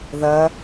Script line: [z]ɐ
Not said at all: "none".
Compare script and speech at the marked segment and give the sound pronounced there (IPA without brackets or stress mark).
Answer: ð